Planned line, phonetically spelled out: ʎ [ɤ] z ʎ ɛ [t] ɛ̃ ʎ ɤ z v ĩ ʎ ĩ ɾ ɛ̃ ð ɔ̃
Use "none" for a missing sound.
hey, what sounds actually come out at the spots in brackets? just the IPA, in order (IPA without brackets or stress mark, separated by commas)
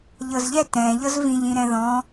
ɤ, t